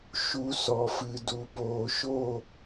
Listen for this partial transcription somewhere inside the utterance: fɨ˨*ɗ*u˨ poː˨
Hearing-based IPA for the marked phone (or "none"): d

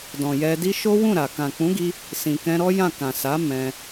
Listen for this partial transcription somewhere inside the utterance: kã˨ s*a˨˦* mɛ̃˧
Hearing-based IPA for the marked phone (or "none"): a˨˦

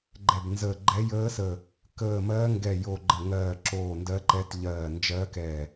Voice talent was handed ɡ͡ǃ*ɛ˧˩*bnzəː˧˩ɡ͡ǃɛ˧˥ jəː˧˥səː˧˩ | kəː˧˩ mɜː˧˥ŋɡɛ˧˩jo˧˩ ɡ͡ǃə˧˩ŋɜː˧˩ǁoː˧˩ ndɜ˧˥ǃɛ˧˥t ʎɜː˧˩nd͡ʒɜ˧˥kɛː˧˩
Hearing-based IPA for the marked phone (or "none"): ɛ˧˩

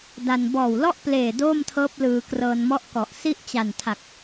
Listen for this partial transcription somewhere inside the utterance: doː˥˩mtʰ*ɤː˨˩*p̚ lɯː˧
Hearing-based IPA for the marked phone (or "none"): ɤː˦˥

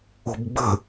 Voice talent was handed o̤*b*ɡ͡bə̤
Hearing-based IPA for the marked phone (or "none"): b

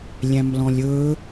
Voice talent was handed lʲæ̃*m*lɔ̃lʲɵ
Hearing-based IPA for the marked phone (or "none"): m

